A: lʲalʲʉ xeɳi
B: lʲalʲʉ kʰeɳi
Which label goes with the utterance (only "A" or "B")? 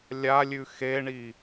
A